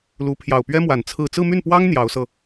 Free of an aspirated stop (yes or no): no